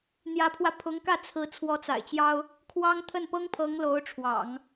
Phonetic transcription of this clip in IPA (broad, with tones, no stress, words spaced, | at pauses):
n̪jä˧˥pʰwä˧ pʰʊ˧˥ŋkä˥˩t͡sʰɹ̩˧˥ t͡sʰwɔ˧˥t͡sa̰˨˩ɪ̯t͡ɕjɑ˥ʊ̯ | kʰwɑ˥ŋ t̪ʰə˥˩npɤ˥ŋpʰɤ˧˥ŋ lo˧˥ʊ̯ʈ͡ʂʰwɑ̰˨˩˦ŋ